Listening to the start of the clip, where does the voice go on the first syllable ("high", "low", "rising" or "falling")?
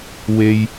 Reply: high